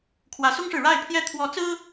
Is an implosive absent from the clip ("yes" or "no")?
yes